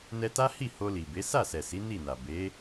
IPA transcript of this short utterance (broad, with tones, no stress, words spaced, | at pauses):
nɛ˧ta˦hi˦˨ ho˧li˨be˨˦ sa˦˨sɛ˨si˨˦ ni˦˨na˨ be˨˦